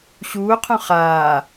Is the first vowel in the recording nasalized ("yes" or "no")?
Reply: no